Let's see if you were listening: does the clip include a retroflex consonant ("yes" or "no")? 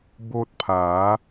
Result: no